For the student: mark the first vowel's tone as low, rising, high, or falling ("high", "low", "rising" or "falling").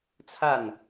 falling